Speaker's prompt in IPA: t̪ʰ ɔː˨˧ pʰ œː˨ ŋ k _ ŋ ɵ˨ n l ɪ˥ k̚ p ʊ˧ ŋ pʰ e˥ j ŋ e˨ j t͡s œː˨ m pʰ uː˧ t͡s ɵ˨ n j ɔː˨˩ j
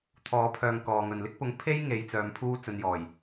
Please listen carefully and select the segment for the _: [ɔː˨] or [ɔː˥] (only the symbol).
ɔː˨